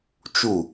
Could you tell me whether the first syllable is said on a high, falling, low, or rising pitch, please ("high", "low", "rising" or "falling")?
falling